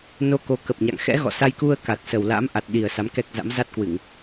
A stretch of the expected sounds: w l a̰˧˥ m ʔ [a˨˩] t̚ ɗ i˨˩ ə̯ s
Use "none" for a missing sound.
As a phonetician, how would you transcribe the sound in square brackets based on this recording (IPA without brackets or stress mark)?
a˨˩